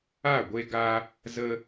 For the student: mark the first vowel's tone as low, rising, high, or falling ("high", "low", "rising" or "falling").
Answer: falling